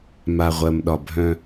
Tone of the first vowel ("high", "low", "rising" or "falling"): low